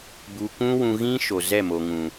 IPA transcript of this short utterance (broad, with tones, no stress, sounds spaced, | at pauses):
b u˧ kʷ ũ˦ w ũ˧ ɣ ĩ˦ ʃ o˨ z ɛ˦˨ m o˨ ŋ ũ˨